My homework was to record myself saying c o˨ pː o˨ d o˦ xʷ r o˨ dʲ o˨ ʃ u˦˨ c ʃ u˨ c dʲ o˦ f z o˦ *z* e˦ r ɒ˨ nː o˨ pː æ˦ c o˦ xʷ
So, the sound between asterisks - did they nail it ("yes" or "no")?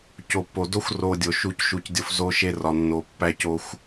no